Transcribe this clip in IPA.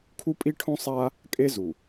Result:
kʰu˦pʼi˦ʈʰõ˦sˤa˦ | kʼe˦zu˨

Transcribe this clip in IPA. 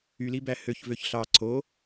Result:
ylibæ høç vøçɬɑ ǀo

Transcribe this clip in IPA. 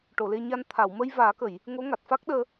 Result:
ʈo˨˩˨le˧ɲa˧n t̪ʰa˨˩˨wmə˧j vaː˨˩˦kə˨˩˨j | ŋo˧˥ŋa˨˩t̚ fa˦˥k̚ɗəː˧

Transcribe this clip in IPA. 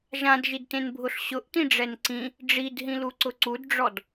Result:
ʒãdʒidtẽn bʱʊɬɕʊʔtĩ ɖ͡ʐɛnǀĩ | ɖ͡ʐidɦĩlu ǀʊǀudɖ͡ʐɔd

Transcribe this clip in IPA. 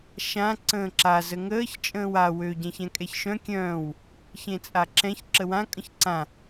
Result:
ʃã ǀə̃ːǁa zəŋəːç t͡ʃʼə̃ːwa wø ɟɛ̃çɛ̃kʼɛçʃœ̃ kʲœ̃ːw | çẽt͡sʼaǁɛ̃ç ǁəwã kʼə̃çǀã

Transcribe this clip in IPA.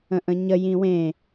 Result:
ə̃ʔə̃ɲə jĩwẽ

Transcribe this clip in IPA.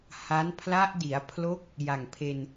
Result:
ha˦˥n pʰla˦˥ʔdi˩˦a̯pʰlo˦˥k̚ | ja˨˩ŋpʰe˧n

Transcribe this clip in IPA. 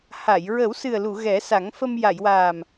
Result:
ha˨˩˨j ɹə˨˩˦w sɨ˨˩ə̯lu˨˩˨ ɣɛ˨˩˦ sa˨˩˦ŋfə˧m ja˨˩˨jwaː˨˩m

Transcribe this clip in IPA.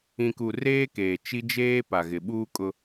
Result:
ĩ˨ku˨ reː˦keː˨ t͡ʃi˦d͡ʒeː˦ pa˨ɣɪ˨ɓuː˦ kʼʊ˦

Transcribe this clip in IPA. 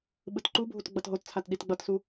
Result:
ɓɯtǃubʱut ɡ͡bʌtɦott͡sʰat ɗitɡ͡bʌtsu

